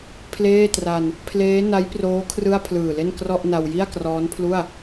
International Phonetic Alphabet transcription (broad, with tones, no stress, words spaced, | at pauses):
pʰleː˥˩tra˧n | pʰleː˦˥ na˦˥jproː˦˥ kʰrɯ˥˩a̯ pʰlɯː˨˩le˥˩n krɔ˥˩ʔna˧w ji˥˩a̯krɔː˦˥npʰlu˥˩a̯